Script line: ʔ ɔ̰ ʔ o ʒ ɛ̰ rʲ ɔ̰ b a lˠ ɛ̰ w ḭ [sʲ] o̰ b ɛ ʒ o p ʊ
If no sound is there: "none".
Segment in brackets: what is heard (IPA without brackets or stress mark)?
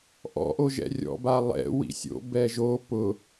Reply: sʲ